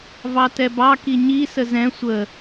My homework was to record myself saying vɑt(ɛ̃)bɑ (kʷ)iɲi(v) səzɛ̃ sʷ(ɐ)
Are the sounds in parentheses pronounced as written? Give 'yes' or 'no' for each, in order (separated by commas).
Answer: no, no, no, no